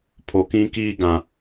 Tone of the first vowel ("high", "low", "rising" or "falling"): low